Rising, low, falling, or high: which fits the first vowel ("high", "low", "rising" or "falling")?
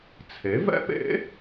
rising